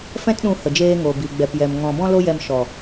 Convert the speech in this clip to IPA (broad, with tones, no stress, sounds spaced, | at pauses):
f ɛ̃˦ t ɗ ũ˧ h ə˨ d͡ʒ eː˧ ŋ o˨ b i˨ ɡ͡b ɛ˨ p j ɛ˨ m ŋ ɔ̃˨ b ɔ̃˦ l o˦ j ɛ˧ m ʃ ɔ˨